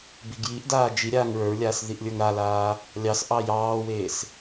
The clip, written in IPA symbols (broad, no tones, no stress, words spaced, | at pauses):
biɡjiʔdaː d͡ʒi ɾʲaːŋɹə˞ɹlʲaːs ðiʔlʲə˞ŋɾalaː | lʲɑs ʔɑjɑːweːs